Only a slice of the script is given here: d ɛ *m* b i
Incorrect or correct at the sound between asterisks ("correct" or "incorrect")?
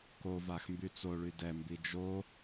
correct